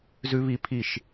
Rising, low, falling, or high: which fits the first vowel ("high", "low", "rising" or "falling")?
high